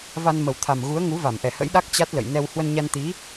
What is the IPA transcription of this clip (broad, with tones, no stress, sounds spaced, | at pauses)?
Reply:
v a˧ n m ə˨˩ w t̪ʰ a˨˩ m ɣ u˨˦ ə̯ ŋ u˨˦ v a˧˩ m ʔ ɛ˧˩ h ə̰˧˥ j ɗ a˦˥ k̚ t͡ɕ a˦˥ t̚ l ə̰˧˨ j n ɛ˧ w h w ə˧ n ɲ a˧ n t̪ i˨˦